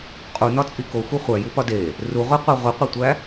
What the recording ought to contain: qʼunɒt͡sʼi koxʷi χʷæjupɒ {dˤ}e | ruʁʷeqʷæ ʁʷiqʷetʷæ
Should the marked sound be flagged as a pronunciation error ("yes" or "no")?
yes